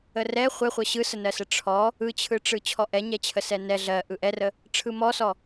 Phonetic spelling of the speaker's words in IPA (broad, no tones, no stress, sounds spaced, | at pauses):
ə r ɛ χʷ ɛ χʷ ɜ ɕ ɯ s ə n ɜ s ə ʈ͡ʂʰ ɔ | ɯ t͡ɕʰ ɯ ʈ͡ʂ ɯ t͡ɕʰ ɔ ʔ ɛ ɲ ɛ t͡ɕʰ ə s ɛ n ɛ ɮ ɜ ʔ ɯ ʔ ɛ r ə | ʈ͡ʂʰ ɯ m ɔ s ɔ